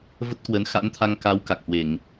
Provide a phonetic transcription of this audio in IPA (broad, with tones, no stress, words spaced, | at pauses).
və˦˥t̚kwə˨˦n xa̰˧˥nt̪ʰa˧ŋka˨˦w ka˨˩k̚hwe˧˩˨ŋ